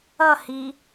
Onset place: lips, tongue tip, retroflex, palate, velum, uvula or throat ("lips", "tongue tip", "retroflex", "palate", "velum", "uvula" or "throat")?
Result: throat